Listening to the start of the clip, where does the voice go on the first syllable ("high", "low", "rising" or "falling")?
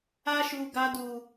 high